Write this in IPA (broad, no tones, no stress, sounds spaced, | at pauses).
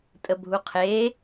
tʼ ə bʱ u qʰ e